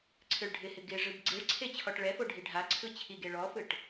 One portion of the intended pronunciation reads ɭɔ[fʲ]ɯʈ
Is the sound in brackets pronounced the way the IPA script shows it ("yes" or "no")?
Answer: no